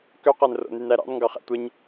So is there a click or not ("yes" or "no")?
no